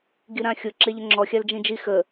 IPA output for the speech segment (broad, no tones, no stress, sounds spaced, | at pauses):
ɡ i ɾ ã xʲ ʊ ǁ e ʎ ə ŋ͡ǁ ɔ xʲ a l d͡ʒ ĩ d͡ʒ i x ə